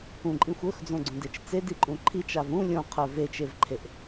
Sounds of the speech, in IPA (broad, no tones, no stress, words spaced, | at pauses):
ũǃʼĩxʷ ɵxd͡zõɡ͡ǀõdet͡ʃ t͡sediǃʼũ ǃʰit͡ʃav ũ lʲõqʰə˞ vet͡ʃevǃʰeʔ